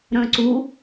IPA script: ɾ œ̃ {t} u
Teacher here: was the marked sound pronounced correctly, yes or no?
no